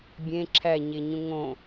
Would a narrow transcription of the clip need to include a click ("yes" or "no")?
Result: yes